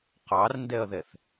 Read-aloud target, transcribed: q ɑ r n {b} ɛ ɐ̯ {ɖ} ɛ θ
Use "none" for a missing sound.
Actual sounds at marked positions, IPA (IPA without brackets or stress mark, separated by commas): d, ð